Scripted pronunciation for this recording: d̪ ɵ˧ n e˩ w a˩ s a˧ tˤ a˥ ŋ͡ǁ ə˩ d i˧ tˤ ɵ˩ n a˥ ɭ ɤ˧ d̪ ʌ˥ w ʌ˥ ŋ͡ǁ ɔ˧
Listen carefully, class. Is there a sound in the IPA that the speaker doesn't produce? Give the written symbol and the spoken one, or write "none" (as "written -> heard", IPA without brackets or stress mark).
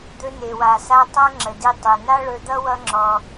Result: ɤ˧ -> ɵ˧